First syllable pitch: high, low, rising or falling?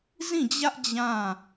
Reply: falling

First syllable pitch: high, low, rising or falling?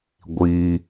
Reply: high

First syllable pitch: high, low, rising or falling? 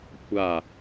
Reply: falling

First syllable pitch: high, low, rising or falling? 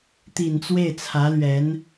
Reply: low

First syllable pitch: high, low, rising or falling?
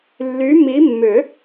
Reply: rising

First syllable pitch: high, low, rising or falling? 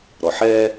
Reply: low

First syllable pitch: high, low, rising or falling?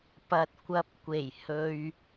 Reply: low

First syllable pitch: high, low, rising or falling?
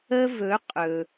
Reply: high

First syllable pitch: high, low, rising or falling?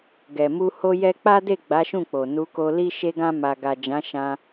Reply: low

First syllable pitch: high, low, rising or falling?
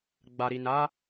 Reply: low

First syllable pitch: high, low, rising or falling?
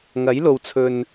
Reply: rising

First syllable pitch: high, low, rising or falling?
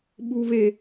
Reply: high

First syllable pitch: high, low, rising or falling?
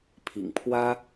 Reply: low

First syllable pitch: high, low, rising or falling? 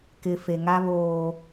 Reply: low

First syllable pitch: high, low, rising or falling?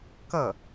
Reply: falling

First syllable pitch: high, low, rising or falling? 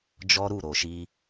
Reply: high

